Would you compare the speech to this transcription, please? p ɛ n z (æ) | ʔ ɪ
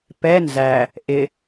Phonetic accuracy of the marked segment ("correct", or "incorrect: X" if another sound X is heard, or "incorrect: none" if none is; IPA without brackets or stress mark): correct